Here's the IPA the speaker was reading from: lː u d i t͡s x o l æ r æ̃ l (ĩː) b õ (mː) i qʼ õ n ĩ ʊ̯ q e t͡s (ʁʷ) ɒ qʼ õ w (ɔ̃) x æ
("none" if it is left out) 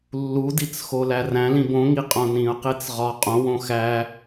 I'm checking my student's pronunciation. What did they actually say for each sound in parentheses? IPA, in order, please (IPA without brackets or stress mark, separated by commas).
ĩ, ŋ, ʁ, õ